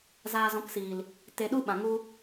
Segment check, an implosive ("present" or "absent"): present